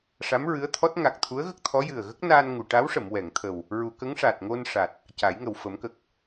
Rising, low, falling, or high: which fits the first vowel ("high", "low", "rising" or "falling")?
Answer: rising